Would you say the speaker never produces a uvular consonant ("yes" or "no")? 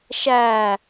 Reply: yes